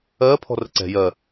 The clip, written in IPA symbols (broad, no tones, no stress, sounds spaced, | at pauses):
ɜː pʰ ɔ̤ r ə ǀ ɛ̤ j ɜ